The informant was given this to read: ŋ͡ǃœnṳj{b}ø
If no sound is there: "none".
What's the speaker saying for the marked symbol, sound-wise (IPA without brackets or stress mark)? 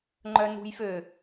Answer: f